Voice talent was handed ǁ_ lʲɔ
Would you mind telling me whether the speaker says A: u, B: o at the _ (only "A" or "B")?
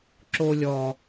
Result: B